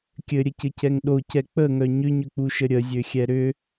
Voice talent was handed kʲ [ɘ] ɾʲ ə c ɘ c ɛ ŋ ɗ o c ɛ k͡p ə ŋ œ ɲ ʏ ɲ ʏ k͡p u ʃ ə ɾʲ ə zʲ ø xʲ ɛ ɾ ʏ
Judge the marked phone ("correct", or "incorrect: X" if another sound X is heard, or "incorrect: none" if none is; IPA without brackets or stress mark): correct